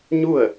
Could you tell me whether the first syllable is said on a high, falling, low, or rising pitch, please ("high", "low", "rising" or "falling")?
falling